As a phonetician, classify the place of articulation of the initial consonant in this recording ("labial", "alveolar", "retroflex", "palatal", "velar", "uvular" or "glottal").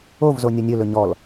labial